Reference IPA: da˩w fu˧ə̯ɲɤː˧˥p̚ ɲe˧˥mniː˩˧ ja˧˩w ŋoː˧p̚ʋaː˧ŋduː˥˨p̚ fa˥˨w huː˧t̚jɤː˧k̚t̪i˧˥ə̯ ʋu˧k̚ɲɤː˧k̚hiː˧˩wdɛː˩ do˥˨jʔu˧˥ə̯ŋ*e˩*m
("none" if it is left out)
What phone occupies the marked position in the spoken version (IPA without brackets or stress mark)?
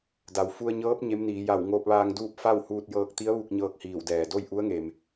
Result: e˩